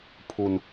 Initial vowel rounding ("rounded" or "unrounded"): rounded